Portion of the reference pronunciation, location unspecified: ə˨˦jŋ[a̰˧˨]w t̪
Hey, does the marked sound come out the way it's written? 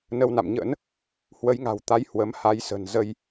no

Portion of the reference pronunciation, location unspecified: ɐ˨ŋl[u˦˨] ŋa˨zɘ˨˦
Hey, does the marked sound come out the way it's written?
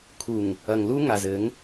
no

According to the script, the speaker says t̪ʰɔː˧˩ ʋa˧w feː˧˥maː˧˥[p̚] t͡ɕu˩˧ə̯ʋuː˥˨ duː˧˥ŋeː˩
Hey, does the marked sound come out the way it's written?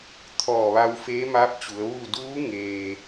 yes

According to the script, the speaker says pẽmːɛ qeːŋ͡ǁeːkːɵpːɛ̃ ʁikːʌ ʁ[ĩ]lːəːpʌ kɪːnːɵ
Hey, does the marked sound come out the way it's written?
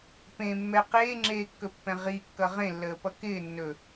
no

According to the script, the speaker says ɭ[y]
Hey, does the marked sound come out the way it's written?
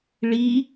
no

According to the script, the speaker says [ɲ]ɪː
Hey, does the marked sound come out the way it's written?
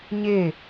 yes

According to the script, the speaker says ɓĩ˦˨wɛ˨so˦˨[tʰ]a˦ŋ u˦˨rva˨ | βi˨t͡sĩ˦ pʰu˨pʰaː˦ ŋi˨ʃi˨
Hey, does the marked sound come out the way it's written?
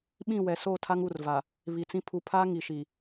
yes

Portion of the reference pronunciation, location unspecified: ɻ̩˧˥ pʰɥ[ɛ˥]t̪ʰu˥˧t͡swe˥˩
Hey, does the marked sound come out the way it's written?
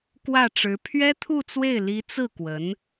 yes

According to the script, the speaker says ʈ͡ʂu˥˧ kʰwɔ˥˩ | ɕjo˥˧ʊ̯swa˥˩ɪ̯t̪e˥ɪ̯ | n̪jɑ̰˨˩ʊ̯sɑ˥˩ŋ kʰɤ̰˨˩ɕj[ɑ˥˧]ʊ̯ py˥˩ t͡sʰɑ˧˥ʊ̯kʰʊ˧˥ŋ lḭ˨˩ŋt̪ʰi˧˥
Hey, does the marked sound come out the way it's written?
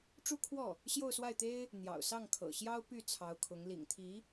no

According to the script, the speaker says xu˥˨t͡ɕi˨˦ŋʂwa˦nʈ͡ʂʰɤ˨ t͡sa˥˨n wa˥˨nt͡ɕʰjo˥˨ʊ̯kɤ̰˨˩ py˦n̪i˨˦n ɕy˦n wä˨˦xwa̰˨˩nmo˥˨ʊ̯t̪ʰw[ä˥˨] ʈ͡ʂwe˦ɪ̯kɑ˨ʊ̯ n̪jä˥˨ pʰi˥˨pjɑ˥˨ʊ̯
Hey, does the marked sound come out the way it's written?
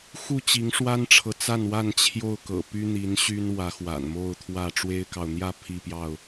yes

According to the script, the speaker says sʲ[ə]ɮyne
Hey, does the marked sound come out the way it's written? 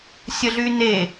yes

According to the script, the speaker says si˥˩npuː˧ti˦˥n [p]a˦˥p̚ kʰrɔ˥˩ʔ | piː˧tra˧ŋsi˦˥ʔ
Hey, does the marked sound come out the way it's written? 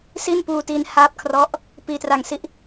no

